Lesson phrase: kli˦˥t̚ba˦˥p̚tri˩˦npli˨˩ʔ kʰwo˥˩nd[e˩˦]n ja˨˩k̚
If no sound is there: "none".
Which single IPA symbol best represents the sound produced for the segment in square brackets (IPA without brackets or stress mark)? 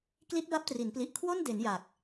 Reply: e˩˦